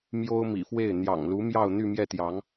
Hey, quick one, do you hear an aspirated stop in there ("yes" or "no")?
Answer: no